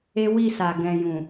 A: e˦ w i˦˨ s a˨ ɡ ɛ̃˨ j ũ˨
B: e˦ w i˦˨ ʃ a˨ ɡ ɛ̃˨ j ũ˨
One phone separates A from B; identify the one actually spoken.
A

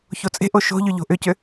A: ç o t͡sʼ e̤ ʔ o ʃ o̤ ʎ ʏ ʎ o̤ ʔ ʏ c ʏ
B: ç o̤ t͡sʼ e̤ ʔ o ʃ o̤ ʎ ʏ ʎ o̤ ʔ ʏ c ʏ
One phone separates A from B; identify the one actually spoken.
A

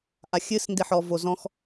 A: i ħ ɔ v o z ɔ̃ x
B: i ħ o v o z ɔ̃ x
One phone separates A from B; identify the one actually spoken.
A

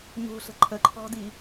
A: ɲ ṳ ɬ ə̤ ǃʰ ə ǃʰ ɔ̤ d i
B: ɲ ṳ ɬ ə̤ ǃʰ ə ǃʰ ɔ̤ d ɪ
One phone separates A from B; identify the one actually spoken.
A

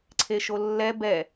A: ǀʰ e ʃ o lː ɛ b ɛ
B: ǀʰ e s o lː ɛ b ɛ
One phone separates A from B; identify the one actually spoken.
A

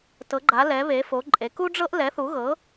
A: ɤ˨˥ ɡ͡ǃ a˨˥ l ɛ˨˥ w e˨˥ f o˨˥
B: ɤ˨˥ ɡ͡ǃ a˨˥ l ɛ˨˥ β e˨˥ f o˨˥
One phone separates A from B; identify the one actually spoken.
B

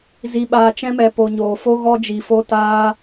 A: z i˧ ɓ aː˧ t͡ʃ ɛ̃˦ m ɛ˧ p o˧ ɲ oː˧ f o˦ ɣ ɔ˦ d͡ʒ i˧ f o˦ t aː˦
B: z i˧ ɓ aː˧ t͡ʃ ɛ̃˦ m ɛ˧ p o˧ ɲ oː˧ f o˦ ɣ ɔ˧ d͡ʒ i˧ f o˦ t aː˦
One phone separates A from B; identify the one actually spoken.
A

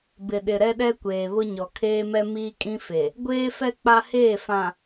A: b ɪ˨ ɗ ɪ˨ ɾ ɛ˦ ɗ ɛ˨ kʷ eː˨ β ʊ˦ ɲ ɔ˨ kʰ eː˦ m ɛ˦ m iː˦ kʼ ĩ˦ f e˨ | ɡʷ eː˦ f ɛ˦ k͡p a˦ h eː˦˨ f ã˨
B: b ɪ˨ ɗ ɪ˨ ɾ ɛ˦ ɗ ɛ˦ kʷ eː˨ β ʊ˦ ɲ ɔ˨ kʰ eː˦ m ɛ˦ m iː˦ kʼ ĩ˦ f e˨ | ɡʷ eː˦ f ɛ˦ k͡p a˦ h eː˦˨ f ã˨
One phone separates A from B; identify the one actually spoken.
B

